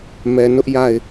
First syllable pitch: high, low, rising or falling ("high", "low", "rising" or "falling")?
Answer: low